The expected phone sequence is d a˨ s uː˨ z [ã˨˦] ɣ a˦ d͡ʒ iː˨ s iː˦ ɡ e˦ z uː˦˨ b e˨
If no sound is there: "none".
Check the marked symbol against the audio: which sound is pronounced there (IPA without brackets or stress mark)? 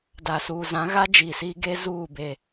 ã˨˦